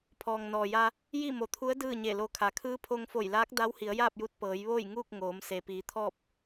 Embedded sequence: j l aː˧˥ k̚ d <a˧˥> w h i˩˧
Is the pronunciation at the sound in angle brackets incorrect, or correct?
correct